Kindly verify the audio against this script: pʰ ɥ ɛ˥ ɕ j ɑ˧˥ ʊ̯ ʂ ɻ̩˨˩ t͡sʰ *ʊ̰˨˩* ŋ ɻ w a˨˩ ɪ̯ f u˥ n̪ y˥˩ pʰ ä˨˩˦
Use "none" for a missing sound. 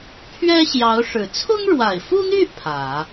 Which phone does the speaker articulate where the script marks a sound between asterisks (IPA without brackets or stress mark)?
ʊ˥